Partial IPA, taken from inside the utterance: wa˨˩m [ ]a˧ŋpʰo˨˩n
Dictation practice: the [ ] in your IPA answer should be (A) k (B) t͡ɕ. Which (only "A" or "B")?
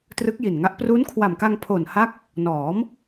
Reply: A